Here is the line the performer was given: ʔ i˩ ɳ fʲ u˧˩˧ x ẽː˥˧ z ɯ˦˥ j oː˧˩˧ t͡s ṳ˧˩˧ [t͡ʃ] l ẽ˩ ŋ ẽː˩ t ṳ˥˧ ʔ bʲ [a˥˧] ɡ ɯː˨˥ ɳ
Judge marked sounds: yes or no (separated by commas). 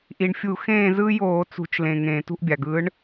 yes, no